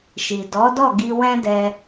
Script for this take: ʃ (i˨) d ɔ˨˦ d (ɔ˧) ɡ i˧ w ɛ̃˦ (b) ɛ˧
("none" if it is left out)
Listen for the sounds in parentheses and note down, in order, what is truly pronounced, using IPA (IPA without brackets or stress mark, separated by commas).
i˨, ɔ˦˨, d